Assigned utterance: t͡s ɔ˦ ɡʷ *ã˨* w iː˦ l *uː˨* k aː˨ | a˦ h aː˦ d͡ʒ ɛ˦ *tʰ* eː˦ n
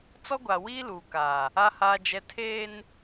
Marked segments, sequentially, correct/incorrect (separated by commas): incorrect, correct, correct